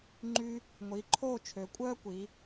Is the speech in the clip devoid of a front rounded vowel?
no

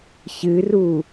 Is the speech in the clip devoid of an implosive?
yes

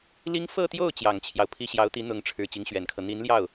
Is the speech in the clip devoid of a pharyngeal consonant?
yes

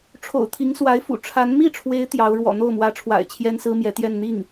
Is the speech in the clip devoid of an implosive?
yes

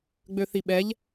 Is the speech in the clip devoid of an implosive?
no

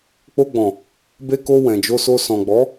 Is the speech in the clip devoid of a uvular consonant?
yes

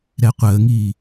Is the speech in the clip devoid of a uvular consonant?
no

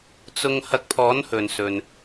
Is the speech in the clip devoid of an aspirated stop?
no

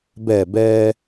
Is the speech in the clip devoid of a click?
yes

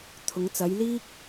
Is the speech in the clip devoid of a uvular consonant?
yes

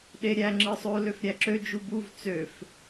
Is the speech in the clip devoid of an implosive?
no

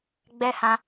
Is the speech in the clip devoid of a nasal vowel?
no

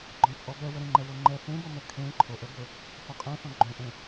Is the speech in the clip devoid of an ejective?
no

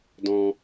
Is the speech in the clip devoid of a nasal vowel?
no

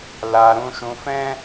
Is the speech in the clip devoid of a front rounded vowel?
yes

